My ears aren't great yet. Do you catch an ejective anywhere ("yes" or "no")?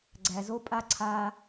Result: yes